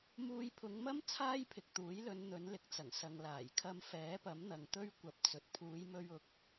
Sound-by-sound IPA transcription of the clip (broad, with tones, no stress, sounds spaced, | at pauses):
m uː˧ j pʰ ʊ˨˧ ŋ m ɐ˥ m t͡sʰ aː˥ j pʰ ɪ˨ k̚ t̪ uː˨˥ j l ɵ˨˧ n n̪ ɵ˨˥ n l ɪ˨˥ k̚ t͡s ɐ˨˩ ŋ s ɐ˨ ŋ l aː˨˩ j kʰ ɐ˧ m f ɛː˨˥ p ɐ˨˥ m n̪ ɐ˨ ŋ t̪ ɵ˥ ɥ kʷ ɐ˨˥ p̚ t͡s ɵ˨ t̚ pʰ uː˨˧ j m ɵ˧ ɥ ʊ˨˥ k̚